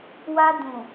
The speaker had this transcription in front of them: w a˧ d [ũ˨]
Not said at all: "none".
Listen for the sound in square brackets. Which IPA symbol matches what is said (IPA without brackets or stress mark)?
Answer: ũ˨